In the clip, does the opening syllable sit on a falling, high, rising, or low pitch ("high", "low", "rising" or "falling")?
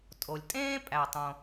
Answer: low